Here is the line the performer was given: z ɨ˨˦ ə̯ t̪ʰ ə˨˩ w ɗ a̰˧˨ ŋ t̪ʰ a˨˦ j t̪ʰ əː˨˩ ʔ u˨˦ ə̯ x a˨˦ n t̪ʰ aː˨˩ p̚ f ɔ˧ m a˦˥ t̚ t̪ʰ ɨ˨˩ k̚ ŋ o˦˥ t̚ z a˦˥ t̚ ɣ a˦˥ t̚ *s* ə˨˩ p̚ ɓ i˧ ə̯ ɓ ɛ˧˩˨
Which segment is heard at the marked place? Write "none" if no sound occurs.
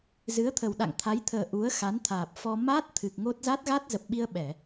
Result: z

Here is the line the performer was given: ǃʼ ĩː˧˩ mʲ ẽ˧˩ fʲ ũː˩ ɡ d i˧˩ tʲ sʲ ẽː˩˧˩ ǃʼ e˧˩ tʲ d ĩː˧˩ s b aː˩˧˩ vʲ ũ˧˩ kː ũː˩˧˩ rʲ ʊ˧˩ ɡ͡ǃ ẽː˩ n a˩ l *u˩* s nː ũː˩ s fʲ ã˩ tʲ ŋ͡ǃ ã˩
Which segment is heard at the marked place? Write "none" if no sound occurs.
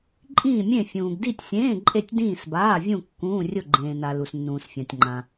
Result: u˩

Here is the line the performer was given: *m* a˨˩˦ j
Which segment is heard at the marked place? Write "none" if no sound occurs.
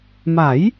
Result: m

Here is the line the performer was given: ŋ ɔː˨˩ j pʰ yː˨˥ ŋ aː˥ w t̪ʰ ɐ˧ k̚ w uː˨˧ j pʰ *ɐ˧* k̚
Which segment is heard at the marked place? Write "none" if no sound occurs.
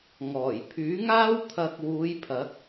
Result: ɐ˨˥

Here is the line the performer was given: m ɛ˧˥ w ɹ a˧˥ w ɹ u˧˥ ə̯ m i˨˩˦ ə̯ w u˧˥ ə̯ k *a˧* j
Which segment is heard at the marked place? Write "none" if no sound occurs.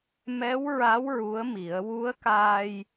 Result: aː˧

